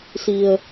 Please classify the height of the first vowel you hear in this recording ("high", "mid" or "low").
high